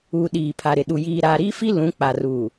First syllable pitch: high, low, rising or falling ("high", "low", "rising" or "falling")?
low